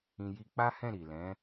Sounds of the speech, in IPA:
ĩ˧ ji˧k͡pa˦hɛ̃˦˨ ɾi˨lɛ̃˨˦

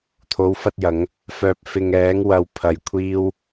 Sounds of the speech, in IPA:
t̪ʰo˨˧wfɐ˧t̚jɐ˨˧ŋ | fœː˨p̚fɪ˨ŋɛː˨˧ŋ wɐ˧w pʰɐ˧jkʷʰiː˥w

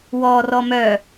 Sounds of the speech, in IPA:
wɔ rɔmœ

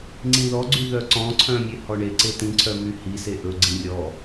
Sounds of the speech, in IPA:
ŋ͡ǀĩðɔɡ͡ǀy ðœǀɔ̃ǀʰœ̃mʲe hɔɳeǀe tĩǀʰœmy hise ʔɵ ɡ͡ǀĩrʲɔ

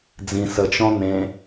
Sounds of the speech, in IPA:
d͡zĩ sət͡ʃɔ̃ n̪ẽ

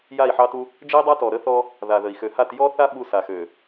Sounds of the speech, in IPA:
ja˦˨i̯ħɑ˦tu˦ | d͡ʒə˦i̯dˤa˦tɔ˨ ɾə˦θɔ˦ | ða˨ðə˨i̯ xø˨ha˦˨t jɔ˦θa˦ ɓu˦ sa˨xø˨

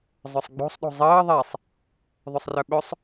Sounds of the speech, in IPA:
zˤœsˤɡ͡bo̤sˤ ɗo̤zˤəː ðˤɛsˤ | ðˤɵsˤrœɓɵsˤ

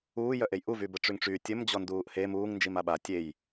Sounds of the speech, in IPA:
uːjœʔej ʔuvy bəʈ͡ʂyŋʈ͡ʂy tʲəm d͡ʑɔnduːʔhe muːŋ nd͡ʒimaɓa tʲej

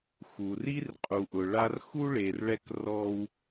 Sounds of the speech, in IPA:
xu˩ri˥rqʼu˩ʔʊ˩ ɭa˧rxu˥ɭe˩rɭɛ˧k rɔ˧w

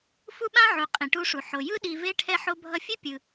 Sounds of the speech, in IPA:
fu˦ɓã˦ʕu˨ qʼĩ˨ʈu˧ʂu˨ ħo˨jɯ˦ ɗi˧ve˦ ʈʰɛ˧ħo˧bʱʌ˧fʲe˦ pʲɯ˧

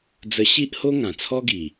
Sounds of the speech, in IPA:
d͡zə˧ɕi˦ʔho˦ ŋã˨˩t͡sʰɔ˦ɡi˨˩

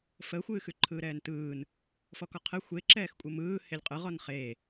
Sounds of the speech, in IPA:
fəxʷɨːxʉ ǃʰɯːɾɛːntɯːn | fɔkɔqʰɨ xʷeǁɛːx kʷʼɨmɯː helʲqʼɯʁɔn χe

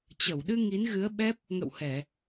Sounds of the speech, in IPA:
t͡ɕə˧˩wɗɨ˧ ŋi˨˦nɣɨ˨˦ə̯ɓɛ˦˥p̚ | ŋə̰˧˨whɛ˧˩˨

